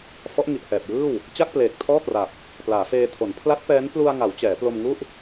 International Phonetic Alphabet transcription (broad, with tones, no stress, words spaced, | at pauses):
fɔ˦˥ʔŋi˨˩ʔhɛː˨˩p̚jɯː˥˩w | t͡ɕa˥˩k̚pleː˨˩k̚tʰɔː˥˩kra˨˩p̚ | plaː˩˦feː˧tʰo˩˦n pʰla˦˥t̚pɛː˦˥n plu˧a̯ ŋa˩˦w t͡ɕɛː˩˦plo˧m ŋu˥˩ʔ